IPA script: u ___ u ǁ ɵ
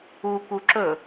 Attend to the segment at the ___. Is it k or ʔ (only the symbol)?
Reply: k